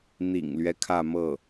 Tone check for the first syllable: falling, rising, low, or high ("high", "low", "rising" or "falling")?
low